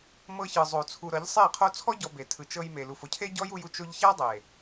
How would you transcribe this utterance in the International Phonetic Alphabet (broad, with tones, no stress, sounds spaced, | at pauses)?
m ɤ˧ ç ɯ˨ zˤ o˨ t͡sʰ u˨ ɾ ɤ˨˦ ʎ sˤ e˦˨ qʰ o˧ t͡sʰ ɔ˦ ɟ ɔ˧ b e˨ tʰ ɯ˨ t͡ʃ ɤ˧ j m e˨ l u˨ f o˧ cʰ e˦ ɟ ɔ˦ j u˧ j u˦ t͡ʃ o˧ ʎ ç a˦ dˤ e˨